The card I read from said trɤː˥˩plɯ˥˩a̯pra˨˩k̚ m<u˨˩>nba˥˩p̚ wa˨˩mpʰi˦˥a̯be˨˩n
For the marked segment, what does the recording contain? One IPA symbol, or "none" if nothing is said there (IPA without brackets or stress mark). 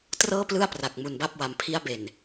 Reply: u˨˩